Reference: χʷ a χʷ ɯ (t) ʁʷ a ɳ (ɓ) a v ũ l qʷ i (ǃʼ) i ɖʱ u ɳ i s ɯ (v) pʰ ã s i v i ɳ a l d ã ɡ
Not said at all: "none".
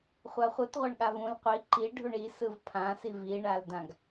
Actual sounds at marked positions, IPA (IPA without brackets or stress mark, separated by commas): t, ɠ, ǃ, v